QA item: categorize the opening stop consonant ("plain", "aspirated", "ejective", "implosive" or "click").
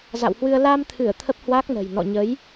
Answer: aspirated